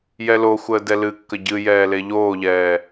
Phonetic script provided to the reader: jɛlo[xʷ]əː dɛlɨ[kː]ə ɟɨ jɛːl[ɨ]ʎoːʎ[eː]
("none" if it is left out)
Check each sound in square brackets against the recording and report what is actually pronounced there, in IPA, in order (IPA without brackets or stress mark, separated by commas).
xʷ, kː, e, ɛː